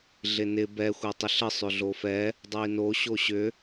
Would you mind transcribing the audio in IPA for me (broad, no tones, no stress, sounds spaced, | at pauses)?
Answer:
ɮ ɪ n ɪ b ɛ xʷ ɛ tˤ ɪ ɬ ə sˤ ʏ ɮ o f ɛ | dˤ o i̯ n o ɕ o ɕ ʏ